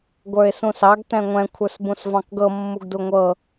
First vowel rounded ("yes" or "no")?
no